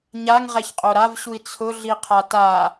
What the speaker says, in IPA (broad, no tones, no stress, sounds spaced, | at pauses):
ɲ a ŋ ʁ ɛ ç qʼ o ɾ a v ɕ u i̯ t͡sʰ ʊ ɮ i qʰ a t a